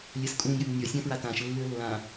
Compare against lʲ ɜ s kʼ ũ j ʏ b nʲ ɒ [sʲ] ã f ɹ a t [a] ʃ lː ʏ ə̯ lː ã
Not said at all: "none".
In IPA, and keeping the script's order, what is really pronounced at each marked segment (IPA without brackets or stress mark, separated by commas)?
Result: sʲ, ã